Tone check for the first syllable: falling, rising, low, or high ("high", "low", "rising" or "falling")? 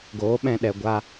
rising